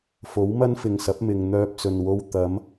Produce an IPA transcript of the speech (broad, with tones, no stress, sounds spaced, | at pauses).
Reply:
f o˨˥ w m ɐ˥ n f ɪ˨ ŋ s ɐ˨˥ p̚ m ɪ˨ ŋ n̪ œː˧ p̚ t͡s ɵ˨ n w o˧ w t̪ ɐ˨˧ m